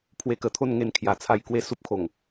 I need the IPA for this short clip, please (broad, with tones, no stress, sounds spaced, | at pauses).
pʰ w e˧ k ə˨˩ t̪ʰ o˥˧ n ŋ e˧ n kʰ j a˨˩ t͡sʰ a˧ j k w e˦ s u˦ p̚ kʰ o˨˩ ŋ